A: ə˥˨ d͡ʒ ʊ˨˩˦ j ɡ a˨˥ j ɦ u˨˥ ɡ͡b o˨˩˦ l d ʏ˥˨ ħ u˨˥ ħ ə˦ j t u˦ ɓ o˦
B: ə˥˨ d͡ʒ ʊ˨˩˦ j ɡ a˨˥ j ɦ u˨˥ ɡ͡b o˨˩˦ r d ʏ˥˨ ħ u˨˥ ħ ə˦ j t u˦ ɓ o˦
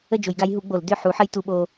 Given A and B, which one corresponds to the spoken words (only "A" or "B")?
A